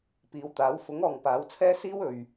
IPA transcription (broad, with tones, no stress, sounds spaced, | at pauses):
p iː˨˧ w t̪ aː˨˥ w f ʊ˨˥ ŋ ɔː˨ ŋ p aː˨˥ w t͡sʰ ɛː˥ s iː˥ w ɵ˨ ɥ